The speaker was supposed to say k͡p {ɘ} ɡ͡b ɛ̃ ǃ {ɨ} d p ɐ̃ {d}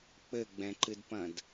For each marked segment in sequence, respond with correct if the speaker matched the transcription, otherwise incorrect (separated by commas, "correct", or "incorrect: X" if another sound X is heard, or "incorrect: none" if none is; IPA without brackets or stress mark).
correct, correct, correct